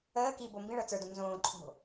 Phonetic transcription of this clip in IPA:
əː k i b o m b ĩ ɭ ɤ t͡s ə˞ d õ n z õː ǃʰ o̤

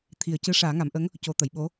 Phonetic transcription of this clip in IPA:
t̪ʰ i˨˩ ə̯ c ɨ˧˥ ʂ aː˨˩˦ ŋ a˨˩˦ m ʔ ə˧˥ ŋ | c o˨˩˦ t̪ ə˨˩˨ j ɓ o˧˥

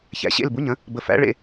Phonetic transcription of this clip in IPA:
ç æ̰˨˩˦ ɕ ḛ˧˥˧ l b u˧˥˧ ɲ ə̃˨˥ | b ə˧ f æ̰˨˥ ɭ ḛ˧

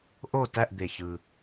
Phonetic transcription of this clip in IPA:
ʔ o˦˨ t æ˦˨ ʔ d̪ e˩ ç ɯ˩

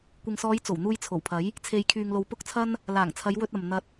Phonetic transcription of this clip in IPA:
kʷ ɪ˨ ŋ s ɔː˨˧ j t͡s o˨˩ w n̪ uː˧ j t͡sʰ o˨˩ w pʰ ɐ˨˥ j | t͡sʰ e˧ j kʰ yː˧ ŋ l o˧ w p ʊ˥ k̚ t͡sʰ ɐ˥ n | l aː˨˩ ŋ t͡sʰ ɐ˨˧ j w ɵ˧ t̚ ɐ˨ m n̪ ɐ˧ t̚

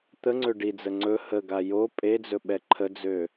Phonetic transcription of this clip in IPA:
t̪ ə ŋ͡ǀ ø ɖ i d͡z ə ŋ͡ǀ ɵ h ə ɡ a j o pʼ e d͡z ɵ ɓ ɛ ǃʰ ə d͡z ø

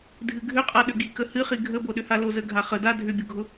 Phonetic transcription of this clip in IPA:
dʱ ɨ ɡʱ ʏ qʼ a ɗ ʏ ɡ i k ə h ɨ χ i ɡʱ ə b o ɗ ʏ h a l o z ə ɡʱ a χ ə d a dʱ ʏ bʲ ʊ ɡʱ ʊ

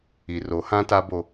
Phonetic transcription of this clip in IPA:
i˨ r o˨˦ h ã˦ t a˦ b o˦

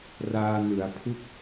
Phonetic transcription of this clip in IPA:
r aː˧ n ɯ˩˦ a̯ pʰ u˥˩ k̚

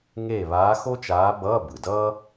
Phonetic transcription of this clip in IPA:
ŋ e˥˨ β aː˧˥ x o˥ t͡ʃ aː˧˥ b ʌː˧˥˧ b ɯ˩ d ʌː˥

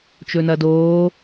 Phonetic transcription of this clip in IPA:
t͡ʃ ɵ n ɐ d oː

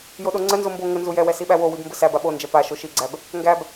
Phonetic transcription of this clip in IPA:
j o ɗ o ŋ͡ǀ ə n z o m b o ŋ ə n z u j ɛ w ɛ s i ɓ æ w o w i b m b ə s æ b a ɓ o n d͡ʒ ɛ p a ʃ o ʃ i ɡ͡ǀ æ b | ŋ ɡ æ b

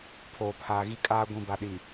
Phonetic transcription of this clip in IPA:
pʰ oː˨ pʰ aː˨ ɣ i˦ kʼ aː˦ ɡʷ ĩ˨ b a˨ ɗ i˨

